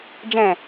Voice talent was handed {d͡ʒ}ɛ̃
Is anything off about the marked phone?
no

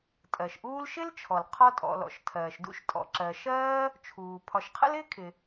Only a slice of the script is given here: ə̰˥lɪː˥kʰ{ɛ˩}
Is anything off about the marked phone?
yes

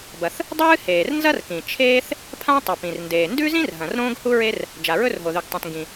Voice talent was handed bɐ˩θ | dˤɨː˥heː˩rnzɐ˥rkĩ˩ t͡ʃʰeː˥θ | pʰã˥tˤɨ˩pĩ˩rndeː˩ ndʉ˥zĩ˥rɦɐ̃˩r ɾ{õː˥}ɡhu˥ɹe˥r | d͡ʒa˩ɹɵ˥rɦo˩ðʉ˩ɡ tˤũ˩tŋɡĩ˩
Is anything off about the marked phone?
no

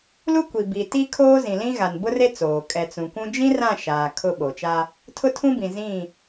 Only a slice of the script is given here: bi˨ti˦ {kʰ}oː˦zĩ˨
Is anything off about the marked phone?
no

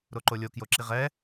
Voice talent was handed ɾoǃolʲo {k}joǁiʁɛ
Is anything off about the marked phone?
no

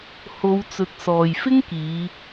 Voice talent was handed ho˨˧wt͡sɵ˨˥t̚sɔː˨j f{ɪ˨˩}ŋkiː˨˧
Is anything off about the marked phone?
yes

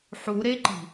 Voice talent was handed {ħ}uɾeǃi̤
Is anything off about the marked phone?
no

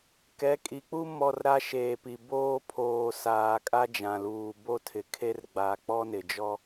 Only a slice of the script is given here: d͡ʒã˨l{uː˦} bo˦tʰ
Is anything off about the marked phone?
yes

